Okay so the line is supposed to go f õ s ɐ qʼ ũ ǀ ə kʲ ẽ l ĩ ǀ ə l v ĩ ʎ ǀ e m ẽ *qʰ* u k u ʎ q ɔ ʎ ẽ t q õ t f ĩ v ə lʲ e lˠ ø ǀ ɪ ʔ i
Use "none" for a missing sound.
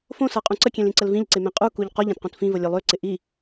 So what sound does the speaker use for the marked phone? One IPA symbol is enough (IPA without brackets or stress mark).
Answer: qʼ